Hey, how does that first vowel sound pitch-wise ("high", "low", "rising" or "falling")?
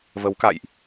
rising